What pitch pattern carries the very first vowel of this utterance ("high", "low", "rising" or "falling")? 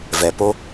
low